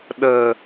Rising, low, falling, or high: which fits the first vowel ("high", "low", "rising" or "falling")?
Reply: low